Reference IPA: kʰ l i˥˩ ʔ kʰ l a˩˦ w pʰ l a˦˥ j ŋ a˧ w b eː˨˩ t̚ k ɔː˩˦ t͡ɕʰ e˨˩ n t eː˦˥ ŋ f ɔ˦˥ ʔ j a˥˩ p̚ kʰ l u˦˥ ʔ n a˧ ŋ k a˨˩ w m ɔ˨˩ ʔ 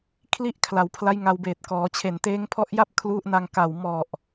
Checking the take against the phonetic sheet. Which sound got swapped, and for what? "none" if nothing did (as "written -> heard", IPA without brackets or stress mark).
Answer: f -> pʰ